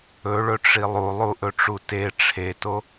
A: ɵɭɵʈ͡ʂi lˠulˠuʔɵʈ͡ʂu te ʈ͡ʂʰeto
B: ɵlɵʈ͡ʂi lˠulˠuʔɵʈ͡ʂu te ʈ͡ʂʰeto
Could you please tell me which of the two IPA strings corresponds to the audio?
A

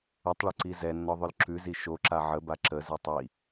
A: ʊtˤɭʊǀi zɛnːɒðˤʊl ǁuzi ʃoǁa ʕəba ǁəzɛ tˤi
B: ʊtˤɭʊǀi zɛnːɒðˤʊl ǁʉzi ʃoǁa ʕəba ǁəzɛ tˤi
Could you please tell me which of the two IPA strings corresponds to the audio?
B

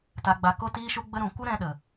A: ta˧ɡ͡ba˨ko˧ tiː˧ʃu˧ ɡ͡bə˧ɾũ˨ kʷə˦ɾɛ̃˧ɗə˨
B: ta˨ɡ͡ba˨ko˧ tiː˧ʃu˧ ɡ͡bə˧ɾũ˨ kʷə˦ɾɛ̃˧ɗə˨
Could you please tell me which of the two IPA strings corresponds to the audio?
B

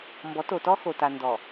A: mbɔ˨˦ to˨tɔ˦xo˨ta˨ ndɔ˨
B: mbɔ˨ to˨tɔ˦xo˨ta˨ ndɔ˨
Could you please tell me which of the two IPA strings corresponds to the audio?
A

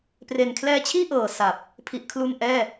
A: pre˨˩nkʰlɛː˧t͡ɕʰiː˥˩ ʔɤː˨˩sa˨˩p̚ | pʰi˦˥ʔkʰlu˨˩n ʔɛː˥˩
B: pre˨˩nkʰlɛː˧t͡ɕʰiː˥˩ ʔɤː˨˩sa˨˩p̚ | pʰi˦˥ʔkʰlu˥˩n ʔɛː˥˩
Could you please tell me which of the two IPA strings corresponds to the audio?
B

